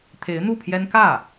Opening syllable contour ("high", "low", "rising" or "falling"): rising